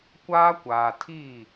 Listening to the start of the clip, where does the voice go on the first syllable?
high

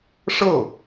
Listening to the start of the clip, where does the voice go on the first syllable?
falling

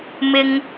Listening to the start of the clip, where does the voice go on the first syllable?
high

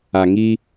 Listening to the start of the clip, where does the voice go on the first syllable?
low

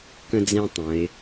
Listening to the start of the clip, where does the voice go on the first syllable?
high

